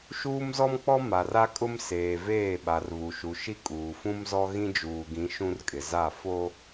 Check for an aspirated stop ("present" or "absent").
absent